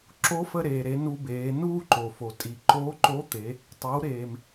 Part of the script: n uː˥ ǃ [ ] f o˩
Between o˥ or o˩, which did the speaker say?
o˩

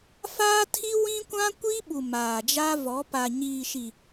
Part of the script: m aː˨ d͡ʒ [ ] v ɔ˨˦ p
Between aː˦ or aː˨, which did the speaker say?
aː˦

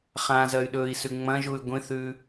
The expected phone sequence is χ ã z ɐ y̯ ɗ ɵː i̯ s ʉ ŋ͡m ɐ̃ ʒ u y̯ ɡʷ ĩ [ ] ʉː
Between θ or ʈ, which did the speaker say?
θ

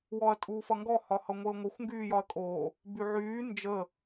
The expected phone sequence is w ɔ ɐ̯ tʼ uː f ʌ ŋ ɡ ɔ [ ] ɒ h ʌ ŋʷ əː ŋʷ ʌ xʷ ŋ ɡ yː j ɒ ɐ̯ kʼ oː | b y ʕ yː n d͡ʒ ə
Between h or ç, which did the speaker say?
h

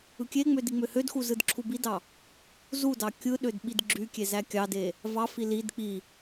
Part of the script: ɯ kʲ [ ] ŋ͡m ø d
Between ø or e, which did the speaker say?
e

